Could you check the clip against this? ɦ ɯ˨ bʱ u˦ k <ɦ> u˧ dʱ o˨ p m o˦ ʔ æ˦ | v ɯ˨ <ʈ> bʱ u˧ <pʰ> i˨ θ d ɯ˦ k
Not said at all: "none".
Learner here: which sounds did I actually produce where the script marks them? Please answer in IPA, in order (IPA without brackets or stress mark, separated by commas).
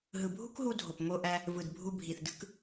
ɦ, d, bʱ